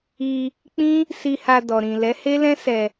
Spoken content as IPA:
i˧ | k͡pĩ˦ | si˧ha˧dɔ˨ɾĩ˨ lɛ˨˦he˦lɛ̃˦ sɛ˧

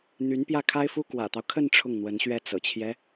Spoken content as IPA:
n̪y˧˥n pjä˥˩kʰa˥ɪ̯fu˥ kwä̰˨˩t̪ɑ˦ʊ̯kʰə˥˧n ʈ͡ʂʰʊ˥˩ŋn̪wə˧˥nɕɥɛ˥˩ t͡sɤ̰˨˩t͡ɕʰjɛ˦

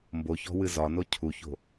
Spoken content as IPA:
mboçɔ̤ wɨzɒno cʰuço̤

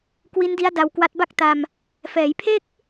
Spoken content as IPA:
kwi˦˥ndi˦˥a̯ da˧wkwa˦˥t̚ ba˥˩k̚ta˧m | fɛː˩˦jpʰe˥˩k̚

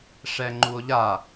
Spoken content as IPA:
ʂɛŋ͡ǃuo̯ʎa

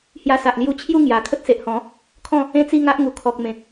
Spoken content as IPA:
hja˧sa˨ʔ lju˧t͡ɕʰju˥˧ ŋja˨˩ kʰə˦t̚se˨ʔhɔ̃˨˦ | kʰɔ̃˥˧ | ẽ˥˧t͡si˥˧ŋa˦ʔŋu˨˩ kʰɔ˨k̚ mẽ˨k̚

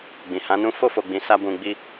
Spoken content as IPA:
ɡ͡bĩ˨ hã˨˦nũ˦ fo˦˨fo˨ ɡ͡bĩ˨˦ sa˦ bũ˧ɡ͡bi˦

